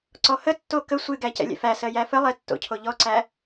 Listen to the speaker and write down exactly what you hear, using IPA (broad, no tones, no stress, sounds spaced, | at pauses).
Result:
ǀ ɔ h ə tː o k ə sʷ ɨ ɡ æ c ɛ̰ lʲ ɛ̰ f æ s ɜ j æ f ə lˠ ɛ tː o̰ cʰ o ʎ ɔ ǀ æ